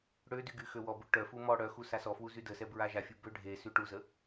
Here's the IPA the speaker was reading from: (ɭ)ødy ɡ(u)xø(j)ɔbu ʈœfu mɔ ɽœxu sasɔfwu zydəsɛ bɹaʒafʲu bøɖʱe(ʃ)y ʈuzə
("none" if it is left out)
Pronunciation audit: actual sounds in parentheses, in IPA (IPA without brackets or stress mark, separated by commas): ɽ, y, w, s